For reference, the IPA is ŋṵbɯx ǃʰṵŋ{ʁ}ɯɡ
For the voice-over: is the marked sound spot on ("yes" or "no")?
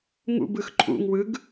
no